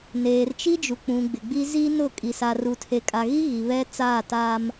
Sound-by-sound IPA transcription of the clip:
neː˨rt͡ʃi˦d͡ʒu˨ k͡pũ˨ɡ͡bɪ˨ɡ͡bi˦ zi˦nʊ˦˨ kʼi˨sa˨ ru˨tʰe˨kʼa˨ɣi˦ ɣi˨βɛ˦ t͡saː˦˨taː˦m

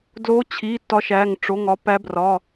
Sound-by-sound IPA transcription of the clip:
dlo˨˦t͡ɕʰi˩˧˩ tɒ˨˦ʃæ˩˧˩ŋ ʈ͡ʂo˩˧˩ŋɒ˨˦pæ˨˦brɒ˩˧˩

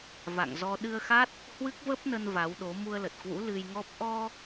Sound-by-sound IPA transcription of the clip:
va̰˧˨ŋzɔ˧ ɗɨ˧ə̯xa˦˥t̚ | hwɨ˦˥k̚və˦˥p̚nə˧n va˨˦wɗo˨˦ mu˧ə̯lə˨˩t̚kwṵ˧˥ lɨ˧jŋɔ˦˥p̚ ʔɔ˧

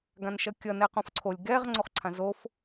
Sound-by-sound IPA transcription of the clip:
ɡãnʃʌkʲʌ nɛqõfǀʰolʲ ɡɛʁ ŋ͡ǀoχǀʰãzof

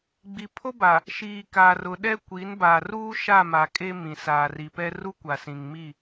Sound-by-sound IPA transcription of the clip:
ɡ͡bi˨pʰo˦ ba˨ | ʃiː˨ka˨rʊ˨ɗɛ˦ kʷi˨˦nbaː˨ruː˦ ʃa˦˨ma˨ kʼe˦mĩ˨ saː˨ri˨pɛ˦ ru˦kʷa˨sĩ˨ŋmi˦˨

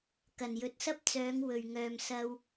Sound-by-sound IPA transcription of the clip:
kɐ˨˩njɵ˨˥t̚sɐ˥p̚t͡sœː˨˧ŋ wɵ˨˩ɥŋœː˨msɐ˧w

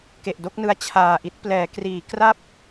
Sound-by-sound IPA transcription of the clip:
ke˨˩ʔdo˥˩k̚nɯ˦˥a̯ t͡ɕʰaː˨˩ʔi˦˥t̚ plɛː˩˦kriː˩˦kra˥˩p̚

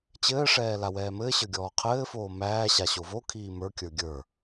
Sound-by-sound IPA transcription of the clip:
t͡ɕɘːʂɛː lawɛːmɘːɕə˞ ɡʲɔːqʰɘːfoː mæːɕa ɕovokʰiː mə˞kʲə˞ ɡʲə˞

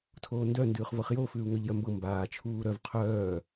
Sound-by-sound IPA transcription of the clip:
tʰoːndœ ndʉːχvɤχjo fʉːu̯ŋœʎjœmbɤ mbaː t͡ʃʰuːɾœv qʰœː

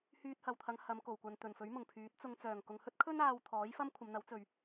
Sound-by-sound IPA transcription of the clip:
hyː˧t̚hɐ˨wt̪ʰɐ˨˧ŋ hɐ˨˧m ko˨˩wkʷɐ˨n t̪ɵ˨˩nfɵ˨˥ɥ mʊ˨˩ŋpʰyː˨˥t̚t͡sʊ˧ŋ t͡sœː˨˩ŋkʊ˨ŋhɵ˥t̚kʰɵ˥n aː˧wt̪ʰɔː˨˥jfɐ˥m kʷʰɐ˨˧mn̪ɐ˨˥wt͡sɵ˨ɥ

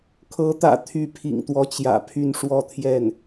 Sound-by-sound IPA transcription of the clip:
kʰɤ˧˥t̪ä̰˨˩ t̪ʰy˧˥pʰḭ˨˩ŋt̪wɔ˧˥t͡ɕjä̰˨˩ pʰy˥˧nʂwɔ˥˧t̪ʰjɛ˥˩n

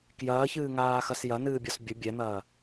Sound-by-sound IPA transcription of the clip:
kjɐːçɨːŋaːxɐs jɐnɨːbʲɔs bʲə bʲɛn̪ɐː

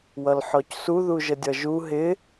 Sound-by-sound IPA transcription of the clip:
wʌlħɔcsu ðuʒədʲʌʒu ɦɪ

